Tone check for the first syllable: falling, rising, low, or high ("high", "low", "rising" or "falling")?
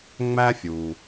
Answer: high